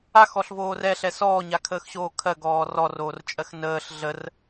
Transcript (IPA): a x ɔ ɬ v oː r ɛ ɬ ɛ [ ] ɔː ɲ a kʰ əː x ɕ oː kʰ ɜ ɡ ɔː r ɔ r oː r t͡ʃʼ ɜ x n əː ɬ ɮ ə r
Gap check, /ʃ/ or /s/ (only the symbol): s